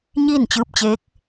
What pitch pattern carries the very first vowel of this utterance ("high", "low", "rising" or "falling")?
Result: falling